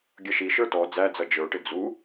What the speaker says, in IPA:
ɡʲ ʌ ʃ i ʃ ə˞ t ɔ d͡z æ d͡z ʌ d͡ʒ ə˞ ʈ ɪ d͡z u

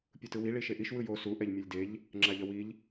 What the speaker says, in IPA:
pʲ ɯ t ɯ w i ɭ i ʃ e ʔ i ʃ w ɯ j o s u ʔ ɛ ʎ mʲ ʌ lʲ d e ʎ | ŋ͡ǁ a ʎ ʌ w i ʎ

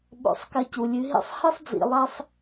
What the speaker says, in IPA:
ɓ o̰˧ sˤ k ɐ˧ c u˨ lʲ ɨ˨˦ ɦ ḭ˦ sˤ h ɨ˦ sˤ d͡z ḭ˨ lˠ a˧ sˤ

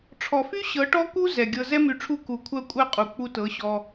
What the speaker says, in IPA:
ʈ͡ʂʰ ɔ˨ f y˦ ɕ ɤ˨˦ ʈ ɔ˦ k u˦ z ɛ˨ ɡʲ ɤ˧ z ɛ˦ m y˧ ʈ͡ʂʰ u˦˨ k u˨ kʷʰ ɜ˧ kʷʼ ɜ˧ qʼ u˨ k͡p u˧ t ɤ˨˦ ɕ ɔ˧

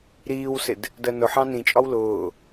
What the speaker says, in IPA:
ɾ iː w s ɪ d | d ɜ n ʊ ħ ɑ̃ n ĩ t͡ʃʼ ɒ w l ʊː

